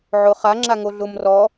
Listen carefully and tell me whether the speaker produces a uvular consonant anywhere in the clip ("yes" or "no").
yes